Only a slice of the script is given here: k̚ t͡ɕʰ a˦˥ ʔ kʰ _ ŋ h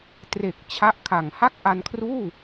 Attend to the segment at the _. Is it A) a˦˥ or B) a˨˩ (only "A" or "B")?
B